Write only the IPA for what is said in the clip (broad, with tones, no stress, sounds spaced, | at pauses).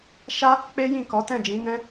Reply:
ʃ a˦ | k͡p e˦ j ĩ˦˨ k ɔ˨˦ t ɛ̃˦˨ d͡ʒ ĩ˨˦ n ɛ̃˦